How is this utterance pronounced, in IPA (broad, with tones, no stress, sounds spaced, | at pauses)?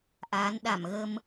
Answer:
ʔ aː˨˦ n ɗ a˧˩ m ɣ ə˧ m